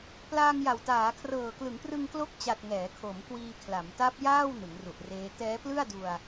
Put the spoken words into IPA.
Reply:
p l aː˧ ŋ j a˨˩ w t aː˩˦ kʰ r ɤː˨˩ k l ɯ˩˦ ŋ p r ɯ˧ ŋ k l o˦˥ k̚ t͡ɕ a˨˩ t̚ ŋ ɛː˩˦ kʰ o˩˦ m k w iː˧ kʰ l a˩˦ m t a˦˥ p̚ j aː˥˩ w n ɯ˩˦ ŋ r u˨˩ ʔ r eː˦˥ t ɛː˦˥ p l ɯ˥˩ a̯ d u˧ a̯

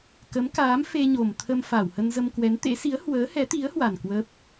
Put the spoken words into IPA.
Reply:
k ə˨˦ m k aː˨˦ m f e˧ ɲ o˨˩ m t̪ʰ ə˧ m f a˧˩ w h ə˧ n z ə˧ m k w ɛ˨˦ n t̪ ḛ˧˥ s i˨˦ ə̯ h w əː˨˦ h ɛ˨˦ t̪ i˨˦ ə̯ h w a˨˩ n k w ə˦˥ p̚

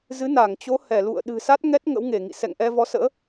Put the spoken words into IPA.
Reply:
z ɨ˨˦ n a˧˩ ŋ t͡ɕ o˨˦ h ɛ˧˩ l ṵ˧˨ ə̯ ɗ ɨ̤˨˩ s a˦˥ t̚ ŋ ɛ˦˥ t̚ ŋ ə̰˧˥ w ŋ e˧˩ ŋ ḭ˧˨ s ɛ̰˧˨ ŋ ʔ ɛ˧ v ɔ˨˦ s ə̰ː˧˥

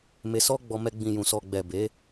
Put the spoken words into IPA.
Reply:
m e˧ s ɔ˦ ɡ͡b ɔ˧ m ɛ˧ ɡ͡b ĩ˨ j ũ˨ s ɔ˨ ɡ͡b ɛ˨ b e˨˦

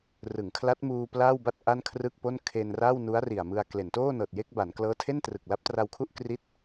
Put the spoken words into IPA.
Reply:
r ɯ˩˦ ŋ kʰ l a˦˥ t̚ m uː˧ p l aː˥˩ w b a˥˩ t̚ ʔ a˥˩ n kʰ r ɯ˥˩ k̚ p o˥˩ n kʰ e˧ n r a˥˩ w n u˦˥ a̯ r i˨˩ a̯ m ɯ˧ a̯ k l e˩˦ n t oː˥˩ n ɤː˨˩ t̚ j e˥˩ k̚ b a˩˦ n k l ɤː˦˥ tʰ e˥˩ n t r ɯ˨˩ k̚ l a˦˥ p̚ t r a˧ w kʰ u˥˩ ʔ k r i˦˥ t̚

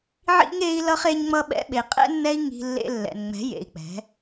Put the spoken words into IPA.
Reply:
ʕ ḭ˦ ŋ e˦ i̯ l ʌ˦ χ e˧ ɲ ŋ͡m ʌ˧ ɓ ɛ̰˧ ɓ e˨ qʼ ɛ̰˦ nː ɛ˦ i̯ ŋ i̤˧ lː ḛ˧ lː ɛ̰˨ n ŋ͡m ɛ̤˨˦ j ḛ˨ i̯ k͡p ɛ̤˨˦

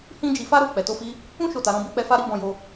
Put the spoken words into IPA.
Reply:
h ĩ˦ d͡ʒ i˧ f a˦ ɾ o˦˨ k͡p ɛ˨ t o˧ f i˧ | ũ˦ ʃ o˦˨ t a˧ ɾ ɔ̃˦ b i˦ k͡p ɛ˧ f a˦ ɾ i˦ b ɔ̃˧ j o˧

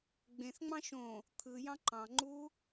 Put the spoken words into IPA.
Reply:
ɡ͡b ẽ θ ŋ͡m ɑ̃ ʃ õ | t̪ʰ ɯ j ɑ̃ ǃ ɑ̃ ŋ͡ǃ u

